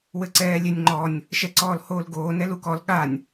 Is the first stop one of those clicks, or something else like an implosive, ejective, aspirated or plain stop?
click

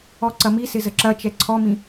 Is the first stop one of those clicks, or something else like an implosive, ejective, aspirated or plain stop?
click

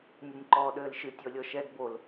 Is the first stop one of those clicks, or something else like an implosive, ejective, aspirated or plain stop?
click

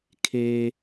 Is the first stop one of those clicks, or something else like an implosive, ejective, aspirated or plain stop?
aspirated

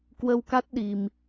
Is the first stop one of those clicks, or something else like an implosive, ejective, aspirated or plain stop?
plain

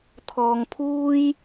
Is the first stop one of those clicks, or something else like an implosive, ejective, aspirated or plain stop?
aspirated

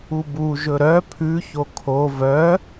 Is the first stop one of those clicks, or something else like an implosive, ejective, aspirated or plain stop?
plain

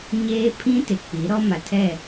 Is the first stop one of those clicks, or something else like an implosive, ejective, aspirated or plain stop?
aspirated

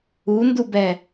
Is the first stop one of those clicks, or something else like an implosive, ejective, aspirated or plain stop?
plain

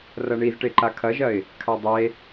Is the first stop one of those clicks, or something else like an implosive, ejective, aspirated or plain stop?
plain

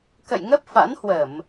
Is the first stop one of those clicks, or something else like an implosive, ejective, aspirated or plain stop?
plain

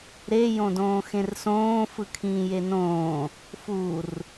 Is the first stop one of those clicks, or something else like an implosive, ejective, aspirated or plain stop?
plain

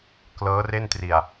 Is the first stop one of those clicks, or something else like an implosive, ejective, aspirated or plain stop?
plain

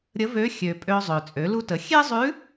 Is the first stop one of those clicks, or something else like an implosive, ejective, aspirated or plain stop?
ejective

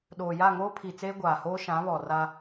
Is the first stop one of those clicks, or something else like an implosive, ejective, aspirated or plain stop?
implosive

